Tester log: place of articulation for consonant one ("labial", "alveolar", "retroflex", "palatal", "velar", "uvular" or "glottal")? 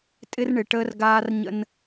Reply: alveolar